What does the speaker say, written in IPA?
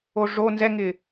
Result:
o ʐ o n z ɛ ŋ ɪ

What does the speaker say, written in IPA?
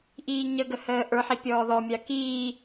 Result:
ʔ iː ɲ ə ɡ ə h əː ʔ ə˞ ħ i pʲ ɔː ð ɔ mʲ a k iː

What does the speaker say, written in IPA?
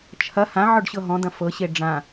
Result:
t͡ʃʰ ɐ h ã ʕ ɔ ɖ ɕ ɤ ɦ ɔ̃ d̪ ɐ̃ f ɤ ɕ e ɖ͡ʐ ã

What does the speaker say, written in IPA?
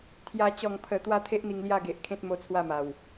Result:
t̪ʰ j a˧ t͡ɕ ɔ˨˩ ŋ pʰ ə˨˩ t̪ w a˥˧ t̪ʰ e˦ ʔ n̪ i˧ ŋ l j a˥˧ ɡ e˨ ʔ kʰ ẽ˦ t̚ m o˦ t͡sʰ w a˥˧ m a˨˩ w

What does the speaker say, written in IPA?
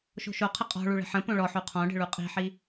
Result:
ʃ o̤ ʃ o qʰ ə qʼ ɔ̤ ɭ u ɭ ə̤ ħ ə̃ p õ ɭ ɔ ħ u qʰ ɔ̃ ɖ ə̤ ɭ u qʼ i̤ ħ i

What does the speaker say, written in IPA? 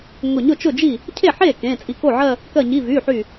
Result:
ŋ ʊ˧˩ ɲ ʊ˥˩ t͡ʃ ʊ˥˩ d͡ʒ i˥˩ | cʰ e˥˩ ħ e˥˩ k ẽ˩˧˩ t͡sʼ i˧˩ k o˥˩ ʕ ɜ˥˧ | k ɜ˧˩ ɲ i˩˧˩ v y˩˧˩ ħ y˧˩

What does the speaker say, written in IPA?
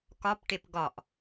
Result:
k ɒ p ʈ e p ɡ ɒ ʔ

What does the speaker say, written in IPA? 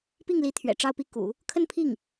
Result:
p i˥˩ ŋ l i˧˥ t̪ʰ ɥ ɛ̰˨˩ ʈ͡ʂ ɑ˥˧ ʊ̯ p i˥˩ k ṵ˨˩˦ | kʰ ə˥˧ n pʰ i˥˩ ŋ

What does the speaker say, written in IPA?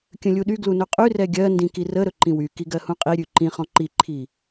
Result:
kʲ ə̃ lʲ u ɗ y ɡ l u n ɵ qʼ y r ɛ ɡʲ ɜ n d ĩ k i r ə ɾ ɵ ǃ ĩ w y k i ɡ ɜ h ũ qʼ i ɾʲ ʉ ǃ ĩ χ ɔ̃ ǃ i ǃʰ i

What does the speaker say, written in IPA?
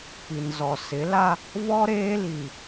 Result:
p i˨ n z ɔ˨ s ɪ˨˦ l a˦ | v ɔ˦ ɾ eː˦ l i˨

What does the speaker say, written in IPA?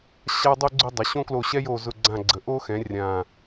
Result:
ɕ a˥ dˤ o˥ ɡ͡ǀ ʊ˥ dˤ ə˩˥ ɕ õ˥ k l o˦˨ ɕ ɛ˥ j o˦˨ z ʊ˦˨ ɡ͡ǀ ã˦˨ ɡ͡ǀ ə˩˥ ʔ o˥ x ɛ̃˩˥ rʲ ã˨˩

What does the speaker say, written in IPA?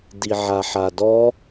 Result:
d i ʕ a ħ a d ɔ

